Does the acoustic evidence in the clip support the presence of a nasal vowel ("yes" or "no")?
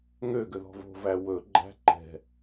no